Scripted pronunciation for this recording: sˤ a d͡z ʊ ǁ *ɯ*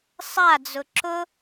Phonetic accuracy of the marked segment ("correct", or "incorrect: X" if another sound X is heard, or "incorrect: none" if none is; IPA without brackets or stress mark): incorrect: ʊ